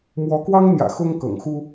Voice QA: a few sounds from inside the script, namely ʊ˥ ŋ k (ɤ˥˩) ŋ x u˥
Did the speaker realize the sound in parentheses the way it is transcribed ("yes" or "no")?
no